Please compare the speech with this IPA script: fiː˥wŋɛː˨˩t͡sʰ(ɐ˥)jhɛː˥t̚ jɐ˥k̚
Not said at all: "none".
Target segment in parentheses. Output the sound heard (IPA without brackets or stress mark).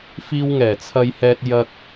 ɐ˥